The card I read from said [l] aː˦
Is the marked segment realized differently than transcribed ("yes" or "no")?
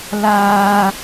no